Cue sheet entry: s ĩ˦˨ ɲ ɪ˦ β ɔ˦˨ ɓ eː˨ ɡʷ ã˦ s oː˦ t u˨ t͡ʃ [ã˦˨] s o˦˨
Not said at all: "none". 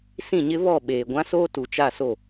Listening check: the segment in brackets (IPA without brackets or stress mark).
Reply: a˦˨